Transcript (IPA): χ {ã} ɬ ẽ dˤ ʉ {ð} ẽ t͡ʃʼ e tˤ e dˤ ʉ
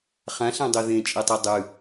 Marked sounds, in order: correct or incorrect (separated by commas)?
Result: correct, correct